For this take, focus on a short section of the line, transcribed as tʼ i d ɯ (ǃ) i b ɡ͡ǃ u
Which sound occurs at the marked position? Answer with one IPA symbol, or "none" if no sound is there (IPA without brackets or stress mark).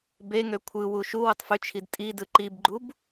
ǃ